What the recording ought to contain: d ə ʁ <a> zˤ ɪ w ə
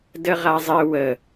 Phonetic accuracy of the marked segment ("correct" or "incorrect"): correct